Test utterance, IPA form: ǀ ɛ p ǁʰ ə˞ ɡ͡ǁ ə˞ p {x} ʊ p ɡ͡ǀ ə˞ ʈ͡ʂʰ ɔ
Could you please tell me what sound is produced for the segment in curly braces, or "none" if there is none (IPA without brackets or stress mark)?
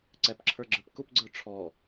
k